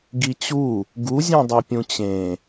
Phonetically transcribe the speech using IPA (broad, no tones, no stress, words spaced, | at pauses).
ɡit͡ɕu | ɡu zʲũdˤøpʲũt͡ɕẽ